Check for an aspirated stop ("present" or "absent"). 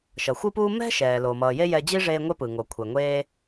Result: present